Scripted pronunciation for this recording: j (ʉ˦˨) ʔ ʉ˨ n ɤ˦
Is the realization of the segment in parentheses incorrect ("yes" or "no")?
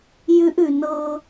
yes